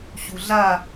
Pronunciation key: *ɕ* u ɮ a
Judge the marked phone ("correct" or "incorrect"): correct